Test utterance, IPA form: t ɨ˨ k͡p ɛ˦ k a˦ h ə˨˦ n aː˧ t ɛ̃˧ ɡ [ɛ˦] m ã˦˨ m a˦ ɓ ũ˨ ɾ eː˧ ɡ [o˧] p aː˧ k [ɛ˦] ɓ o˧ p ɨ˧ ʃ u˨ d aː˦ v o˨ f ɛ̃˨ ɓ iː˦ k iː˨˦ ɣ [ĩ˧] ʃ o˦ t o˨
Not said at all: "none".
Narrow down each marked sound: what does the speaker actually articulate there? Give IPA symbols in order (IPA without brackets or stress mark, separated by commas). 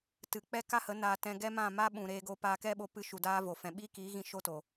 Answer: ɛ˦, o˧, ɛ˦, ĩ˧